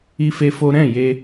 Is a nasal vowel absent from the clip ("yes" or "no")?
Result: no